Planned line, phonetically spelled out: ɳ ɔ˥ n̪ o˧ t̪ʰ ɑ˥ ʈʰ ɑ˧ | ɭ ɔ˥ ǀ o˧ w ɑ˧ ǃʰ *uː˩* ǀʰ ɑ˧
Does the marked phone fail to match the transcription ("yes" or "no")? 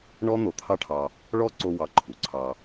yes